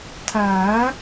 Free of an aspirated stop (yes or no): no